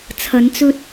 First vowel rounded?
no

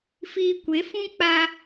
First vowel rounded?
no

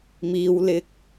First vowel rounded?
no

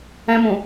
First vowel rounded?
no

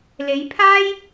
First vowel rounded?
no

